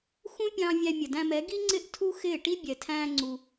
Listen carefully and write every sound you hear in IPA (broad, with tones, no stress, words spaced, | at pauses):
xũ˦pʲɑ̃˧ vʲæ˦ mʲə˨dæ̃˧mɛ˨˦ ɡi˦ŋ͡ǀɪ˦ʔ tʰu˦xɪː˦˨ʈi˦ bʲɛ˨tʰæ̃ː˧ ŋ͡ǀu˧